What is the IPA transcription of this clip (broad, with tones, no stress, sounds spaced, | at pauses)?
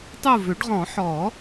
tˤ u˦˨ v ʏ˨˩˦ ɖ ʁ ɔ̃˨˩˦ ħ ɔ˨˩˦